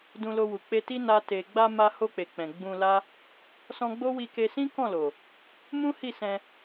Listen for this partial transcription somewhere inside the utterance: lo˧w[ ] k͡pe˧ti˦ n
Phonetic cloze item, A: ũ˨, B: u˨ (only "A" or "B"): B